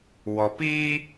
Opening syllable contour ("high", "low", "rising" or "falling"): low